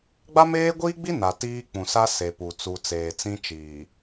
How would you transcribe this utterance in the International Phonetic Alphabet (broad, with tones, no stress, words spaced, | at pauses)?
ɡ͡ba˦meː˦ɡʷiː˦ɡ͡bi˦ na˨tiː˦ k͡pũ˨sa˦ se˨pu˨ t͡su˨ t͡seː˨t͡sĩ˦t͡ʃiː˨